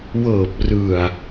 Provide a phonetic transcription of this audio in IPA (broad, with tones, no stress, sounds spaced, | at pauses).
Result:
w ɤː˨˩ p̚ r ɯ˨˩ a̯